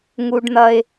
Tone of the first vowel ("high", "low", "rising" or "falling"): low